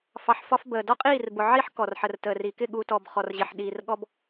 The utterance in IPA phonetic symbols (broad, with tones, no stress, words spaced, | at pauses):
fɑ˨ħ fɒ˦fbəː˨ dɔ˦qʼiː˦˨rbʊ˨ ʕi˦ħ kɔ˨rħə˨rtəː˨ri˨ kɪ˦˨ɠu˨tɔ˨b χɔ˨rʑɪ˨ħ ɗiː˨rɠɔ˦b